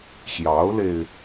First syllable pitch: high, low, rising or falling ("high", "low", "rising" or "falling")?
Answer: rising